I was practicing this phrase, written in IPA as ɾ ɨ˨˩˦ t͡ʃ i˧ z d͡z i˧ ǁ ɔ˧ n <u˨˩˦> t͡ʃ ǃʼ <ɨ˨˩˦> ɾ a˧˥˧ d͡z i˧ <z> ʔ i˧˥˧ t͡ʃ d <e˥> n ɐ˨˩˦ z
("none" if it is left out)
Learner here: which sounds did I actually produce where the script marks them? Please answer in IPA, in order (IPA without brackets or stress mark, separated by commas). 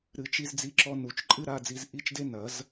u˨˩˦, ɨ˥, z, e˥